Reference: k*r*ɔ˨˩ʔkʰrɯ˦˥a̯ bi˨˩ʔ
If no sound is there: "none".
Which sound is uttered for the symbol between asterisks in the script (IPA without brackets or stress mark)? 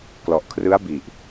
l